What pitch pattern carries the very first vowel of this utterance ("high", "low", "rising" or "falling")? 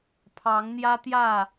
rising